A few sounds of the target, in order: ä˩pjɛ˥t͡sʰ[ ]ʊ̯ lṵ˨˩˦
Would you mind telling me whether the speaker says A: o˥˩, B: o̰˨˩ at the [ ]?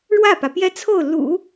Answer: A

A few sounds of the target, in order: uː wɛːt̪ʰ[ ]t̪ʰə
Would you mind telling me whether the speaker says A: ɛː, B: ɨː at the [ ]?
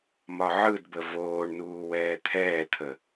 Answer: A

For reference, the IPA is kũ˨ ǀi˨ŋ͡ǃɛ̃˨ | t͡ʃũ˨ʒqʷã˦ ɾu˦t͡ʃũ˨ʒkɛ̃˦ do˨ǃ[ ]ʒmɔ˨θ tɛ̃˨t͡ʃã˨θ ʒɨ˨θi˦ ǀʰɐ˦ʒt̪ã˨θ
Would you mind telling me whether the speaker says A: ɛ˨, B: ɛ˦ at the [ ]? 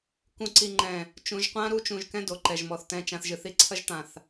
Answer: A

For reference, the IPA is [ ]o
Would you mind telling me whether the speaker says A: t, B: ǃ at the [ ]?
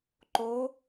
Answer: B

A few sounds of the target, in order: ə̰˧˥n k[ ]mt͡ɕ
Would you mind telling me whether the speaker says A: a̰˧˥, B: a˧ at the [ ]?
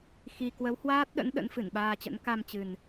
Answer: B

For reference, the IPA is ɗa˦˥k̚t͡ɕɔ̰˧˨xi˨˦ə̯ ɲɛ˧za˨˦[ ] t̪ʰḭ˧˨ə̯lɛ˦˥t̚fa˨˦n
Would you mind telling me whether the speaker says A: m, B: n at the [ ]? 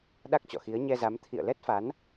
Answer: A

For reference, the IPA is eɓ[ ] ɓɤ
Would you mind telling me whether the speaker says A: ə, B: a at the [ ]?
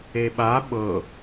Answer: B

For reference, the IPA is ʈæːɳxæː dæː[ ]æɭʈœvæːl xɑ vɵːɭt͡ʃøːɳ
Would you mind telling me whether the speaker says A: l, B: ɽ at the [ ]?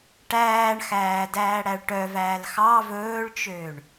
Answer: B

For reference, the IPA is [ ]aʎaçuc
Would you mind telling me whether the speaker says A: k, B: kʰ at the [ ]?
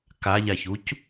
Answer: A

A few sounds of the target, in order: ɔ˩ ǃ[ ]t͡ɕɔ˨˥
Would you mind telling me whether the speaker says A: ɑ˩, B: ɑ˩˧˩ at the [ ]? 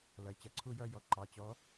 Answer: B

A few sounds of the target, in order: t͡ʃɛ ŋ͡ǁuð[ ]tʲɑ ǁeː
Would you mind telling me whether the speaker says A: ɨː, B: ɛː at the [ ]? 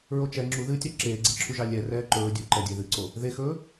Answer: A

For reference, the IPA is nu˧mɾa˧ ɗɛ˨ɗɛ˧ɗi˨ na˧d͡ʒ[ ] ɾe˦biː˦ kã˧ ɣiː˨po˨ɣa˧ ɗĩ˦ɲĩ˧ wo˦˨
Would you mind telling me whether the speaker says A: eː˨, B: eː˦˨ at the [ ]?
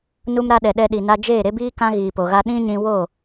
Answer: B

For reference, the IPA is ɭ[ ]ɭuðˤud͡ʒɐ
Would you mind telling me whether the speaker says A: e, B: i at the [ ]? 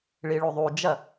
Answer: B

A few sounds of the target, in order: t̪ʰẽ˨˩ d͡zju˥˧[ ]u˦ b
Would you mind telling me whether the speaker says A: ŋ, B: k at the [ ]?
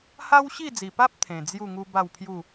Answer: A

